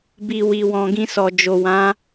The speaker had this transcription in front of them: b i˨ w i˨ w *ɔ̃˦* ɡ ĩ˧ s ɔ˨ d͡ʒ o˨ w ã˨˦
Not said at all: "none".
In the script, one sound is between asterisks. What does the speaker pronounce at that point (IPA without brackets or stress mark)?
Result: ɔ̃˨